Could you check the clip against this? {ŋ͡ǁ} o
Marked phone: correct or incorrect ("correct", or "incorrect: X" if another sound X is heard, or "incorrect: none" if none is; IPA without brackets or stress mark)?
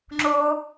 correct